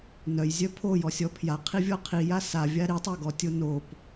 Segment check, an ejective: absent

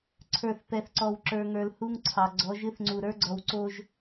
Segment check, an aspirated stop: present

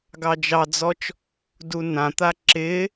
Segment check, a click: present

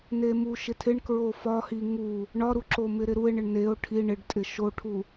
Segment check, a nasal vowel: absent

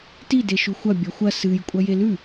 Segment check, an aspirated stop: absent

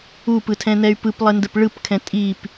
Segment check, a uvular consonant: absent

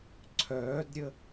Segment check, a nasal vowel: absent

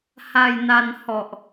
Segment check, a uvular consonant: absent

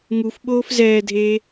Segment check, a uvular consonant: absent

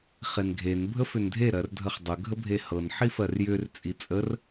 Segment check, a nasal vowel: absent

